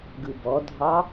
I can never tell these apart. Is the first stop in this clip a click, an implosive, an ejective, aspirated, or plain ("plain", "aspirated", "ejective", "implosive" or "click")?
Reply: plain